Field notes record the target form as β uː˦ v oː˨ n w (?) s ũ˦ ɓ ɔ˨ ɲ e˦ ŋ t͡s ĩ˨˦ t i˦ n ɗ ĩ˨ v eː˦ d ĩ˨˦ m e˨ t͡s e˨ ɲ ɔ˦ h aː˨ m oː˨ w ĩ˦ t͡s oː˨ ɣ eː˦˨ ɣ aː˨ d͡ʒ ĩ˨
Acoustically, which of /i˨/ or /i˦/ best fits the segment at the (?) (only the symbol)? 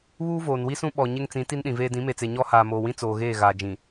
i˦